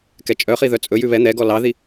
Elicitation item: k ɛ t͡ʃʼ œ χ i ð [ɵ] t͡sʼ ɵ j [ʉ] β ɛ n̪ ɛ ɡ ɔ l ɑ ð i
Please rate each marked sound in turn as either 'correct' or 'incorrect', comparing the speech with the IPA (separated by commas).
incorrect, correct